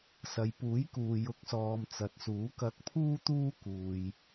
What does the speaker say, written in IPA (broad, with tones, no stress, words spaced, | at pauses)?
sɐ˨jpuː˨˥jkuː˨ jʊ˨˥k̚sɔː˨m t͡sɐ˨t̚suː˨˥kɐ˧k̚ pʰuː˥t̪uː˥ kuː˧j